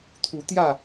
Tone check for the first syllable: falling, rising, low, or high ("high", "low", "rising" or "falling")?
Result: rising